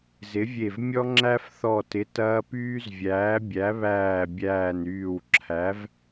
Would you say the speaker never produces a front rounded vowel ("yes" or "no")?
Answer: no